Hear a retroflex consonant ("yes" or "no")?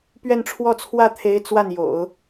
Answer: yes